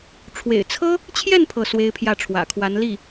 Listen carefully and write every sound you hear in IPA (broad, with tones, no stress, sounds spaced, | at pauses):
ʈ͡ʂʰ w ḛ˨˩ ɪ̯ t͡sʰ ɤ˥ | t͡ɕʰ j ɛ˥˧ n pʰ ɤ˥˩ s w e˥ ɪ̯ pʰ j ä˥˩ ʈ͡ʂʰ w ä̰˨˩ kʰ w a˧˥ n l i˥˩